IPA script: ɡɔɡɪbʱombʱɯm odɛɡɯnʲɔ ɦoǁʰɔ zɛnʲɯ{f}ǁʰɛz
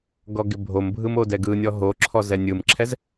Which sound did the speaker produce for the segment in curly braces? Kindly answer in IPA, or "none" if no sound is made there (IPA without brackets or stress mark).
m